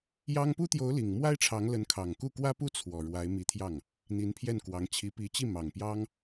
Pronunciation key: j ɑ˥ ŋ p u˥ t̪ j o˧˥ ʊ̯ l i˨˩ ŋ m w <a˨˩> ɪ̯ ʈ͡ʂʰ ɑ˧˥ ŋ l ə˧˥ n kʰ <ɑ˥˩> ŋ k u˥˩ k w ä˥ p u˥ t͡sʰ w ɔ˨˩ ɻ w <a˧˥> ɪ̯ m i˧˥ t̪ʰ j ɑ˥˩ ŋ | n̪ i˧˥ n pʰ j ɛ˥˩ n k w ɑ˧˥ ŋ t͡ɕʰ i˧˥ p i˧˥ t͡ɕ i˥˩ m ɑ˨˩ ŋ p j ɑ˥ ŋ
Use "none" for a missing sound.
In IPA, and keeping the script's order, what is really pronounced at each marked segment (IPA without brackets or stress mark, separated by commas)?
a˥, ɑ˨˩, a˧˥